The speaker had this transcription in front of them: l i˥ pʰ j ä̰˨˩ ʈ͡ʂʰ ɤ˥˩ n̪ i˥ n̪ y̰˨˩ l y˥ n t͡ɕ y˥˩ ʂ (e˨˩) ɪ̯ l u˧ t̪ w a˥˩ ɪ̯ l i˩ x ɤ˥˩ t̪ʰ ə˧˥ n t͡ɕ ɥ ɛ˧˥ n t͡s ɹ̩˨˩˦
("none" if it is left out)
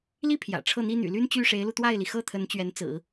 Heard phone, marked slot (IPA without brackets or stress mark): e˧˥